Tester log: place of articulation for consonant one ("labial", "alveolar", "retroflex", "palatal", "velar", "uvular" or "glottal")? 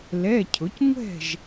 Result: alveolar